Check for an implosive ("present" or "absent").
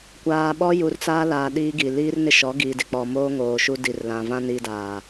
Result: present